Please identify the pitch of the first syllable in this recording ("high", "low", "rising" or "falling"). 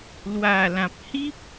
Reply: low